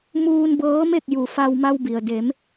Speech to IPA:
m uː˧ n b ɤː˧˥ m e˥˨ k̚ j u˩˧ f a˧ w m a˧ w b i˩ ə̯ d e˩˧ m

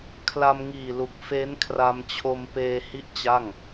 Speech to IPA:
kʰ l a˧ m ŋ iː˨˩ l u˨˩ k̚ f e˦˥ n kʰ r a˧ m t͡ɕʰ o˧ m p eː˧ h i˥˩ ʔ t͡ɕ a˥˩ ŋ

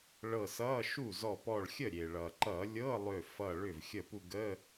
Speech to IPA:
ɭ ɤ˧˩ s ʌ˧˥˧ ʃ u˥˩ z ɔ˧˩ p ɔ˧˩ ɭ xʲ ə˥˩ ɾʲ e˩ ɭ ʌ˩ ǃ ʌ˧˩˧ lʲ ɤ˧˥˧ lˠ ø˧˩ f ʌ˧˩ ɭ ʏ˥˩ v xʲ ə˥˩ p u˥˧ ɡ ə˧˥˧

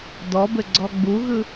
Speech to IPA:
d ɔ b ɘ ɡ͡ǀ ɔ ɡ͡b u ɣ ɯ

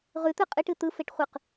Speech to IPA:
ʁ ʉ t̪ ɯ qʼ ɨ ʈ ɨ t̪ ɯ f e ʈ χʷ ɯ q

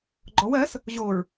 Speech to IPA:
ɡ͡ǃ ɔ w ɜ s | ʑ o ɹ

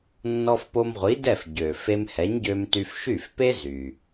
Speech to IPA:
nː ɔ˧ f p o˧ m ʁʷ i˩˥ d ɛ˥˩ f ɟ ø˩ f e˧ m h ɛ˩˥ ɲ ɟ ø˧ m t y˧ f ʃ y˥˩ f p e˥ z y˩

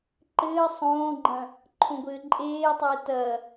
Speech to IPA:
ǃ ɘː sˤ õː ɡ͡ǃ ɐ̃ | ǃʰ õ ɡʷ ɘː ǃʼ eː tˤ ɪː t ɐ

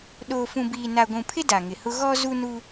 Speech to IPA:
ɗ oː˨ f ũ˨ b iː˨ n a˨ ɡʷ ũ˨ pʰ ɪ˦ d a˨ ŋ ɪ˨ h ʊ˦ ɣ ɔ˦ z u˦ n u˦

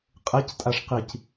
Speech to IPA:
qʼ e c tʼ a ʂ q i c

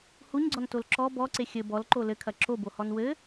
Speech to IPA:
h u ɲ ɡ͡ǀ ɔ n t o l ǁ ɔ b ɔ ǀ e xʲ ɘ b ɔ l ǃ o l ɘ kʰ ɐ ǁ o b o h ɔ n w ɘ

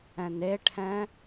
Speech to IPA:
ɛ̃ n e ʈʰ ɛ̃

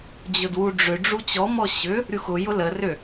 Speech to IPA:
d͡ʑ ʊ d w u ɖ͡ʐ ʏ ɖ͡ʐ u t͡ɕ ɔ m ɔ ɕ ʏ | ɾʲ u x ʊ j ʊ l ə r ʏ

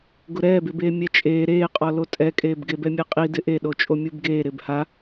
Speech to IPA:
ɡ ʊ ɾ ɛː b ɪ b eː mʲ ɛ t͡ʃʼ eː ɾ eː qʼ ɔ l o tʼ ɛ kʼ eː b ɡ e b ɛ mʲ ɛ qʼ i d ɪ ʔ e ɗ o t͡ʃʼ o mʲ u b ɡ eː ɾ ɪ b h a

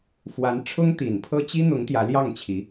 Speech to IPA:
f w a˧˥ n ʈ͡ʂʰ ʊ˥ ŋ t̪ i˨˩ n pʰ ɤ˥ t͡ɕ i˥ n̪ ʊ˧˥ ŋ t̪ j ä˧˥ l j ɑ˥˩ ŋ t͡ɕʰ i˧˥

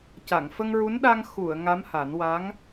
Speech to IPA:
c a˨˩˨ ŋ f ə˧ ŋ ɹ u˧˥ n ɗ a˧ ŋ x u˨˩˨ ə̯ ŋ a˧˥ m h a˨˩˦ n w a˧˥ ŋ

